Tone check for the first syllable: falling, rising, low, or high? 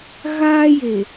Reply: high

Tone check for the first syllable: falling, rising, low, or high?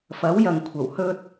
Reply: rising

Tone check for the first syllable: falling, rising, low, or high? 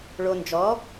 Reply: low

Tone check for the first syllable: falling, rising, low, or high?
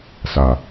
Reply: low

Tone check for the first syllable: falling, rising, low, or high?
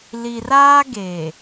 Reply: low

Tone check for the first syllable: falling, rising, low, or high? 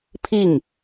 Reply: falling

